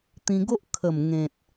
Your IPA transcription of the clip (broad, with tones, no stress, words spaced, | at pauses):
t̪ĩ˧ɡo˦ʔ kʰə˨˩mŋẽ˨t̚